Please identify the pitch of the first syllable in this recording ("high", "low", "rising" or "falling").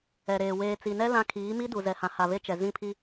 low